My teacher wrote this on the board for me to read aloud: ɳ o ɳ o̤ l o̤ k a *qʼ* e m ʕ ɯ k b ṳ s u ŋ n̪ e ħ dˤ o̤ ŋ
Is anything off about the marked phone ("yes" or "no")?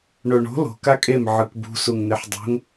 yes